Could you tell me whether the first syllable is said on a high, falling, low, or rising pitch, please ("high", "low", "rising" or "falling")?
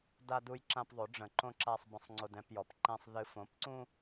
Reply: high